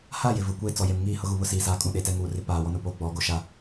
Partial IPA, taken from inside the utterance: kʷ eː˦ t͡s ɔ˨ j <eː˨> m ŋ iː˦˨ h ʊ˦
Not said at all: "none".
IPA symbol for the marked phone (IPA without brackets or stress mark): e˨